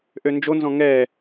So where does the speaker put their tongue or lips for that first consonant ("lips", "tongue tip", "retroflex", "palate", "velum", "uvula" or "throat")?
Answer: throat